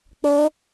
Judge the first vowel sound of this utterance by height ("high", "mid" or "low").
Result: mid